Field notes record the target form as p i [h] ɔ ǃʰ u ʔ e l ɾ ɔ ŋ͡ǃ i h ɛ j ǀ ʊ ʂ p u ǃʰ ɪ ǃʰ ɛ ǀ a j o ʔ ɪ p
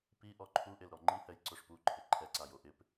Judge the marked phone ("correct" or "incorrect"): incorrect